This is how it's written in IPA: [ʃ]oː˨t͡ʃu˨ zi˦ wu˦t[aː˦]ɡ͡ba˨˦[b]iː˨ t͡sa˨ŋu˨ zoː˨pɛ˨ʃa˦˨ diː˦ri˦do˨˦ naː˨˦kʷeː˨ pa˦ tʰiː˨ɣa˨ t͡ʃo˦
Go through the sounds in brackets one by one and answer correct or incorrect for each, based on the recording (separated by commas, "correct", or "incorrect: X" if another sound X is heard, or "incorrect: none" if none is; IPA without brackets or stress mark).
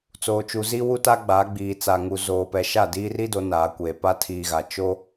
incorrect: t͡s, incorrect: a˦, incorrect: ɡ͡b